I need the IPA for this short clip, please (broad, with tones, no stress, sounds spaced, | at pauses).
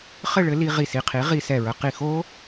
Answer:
χ ɘ˥˨ ɭ ɘ˨˥ l i˧ ʁ i˧˩ s i˧˩ qʰ i˨˥ ʁ i˧ s ɛ˧˩ ɹ ə˧ q i˧˩ x o˦˥